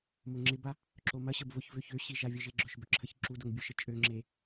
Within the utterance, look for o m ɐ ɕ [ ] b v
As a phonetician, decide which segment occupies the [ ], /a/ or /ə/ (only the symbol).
ə